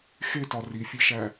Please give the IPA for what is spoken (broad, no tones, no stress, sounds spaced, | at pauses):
x e t ɒ r i fʲ e ʃ æ